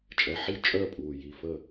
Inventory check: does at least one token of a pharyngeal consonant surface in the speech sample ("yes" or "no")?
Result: yes